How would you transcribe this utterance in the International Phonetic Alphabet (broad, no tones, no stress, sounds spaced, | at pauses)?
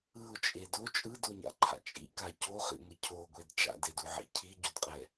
ɯ ʊ̯ t͡ʃʼ e d o t͡ʃʼ ɯ d o ɲ a̰ ǃʰ a̰ t͡ʃʼ ḭ k a c o χ ḭ ŋʷ i cʰ o ɡʷ e d t͡ʃ a̰ d e d u ʕ ḭ cʰ i ɟ o d qʼ ɛ